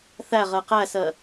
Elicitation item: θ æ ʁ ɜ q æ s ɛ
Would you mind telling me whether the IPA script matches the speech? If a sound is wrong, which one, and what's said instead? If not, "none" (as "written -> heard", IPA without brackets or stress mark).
ɛ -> ɜ